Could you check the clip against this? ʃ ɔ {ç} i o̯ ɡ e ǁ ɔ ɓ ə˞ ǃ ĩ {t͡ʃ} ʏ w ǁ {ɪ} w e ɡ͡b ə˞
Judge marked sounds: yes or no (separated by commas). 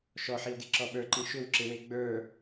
no, no, yes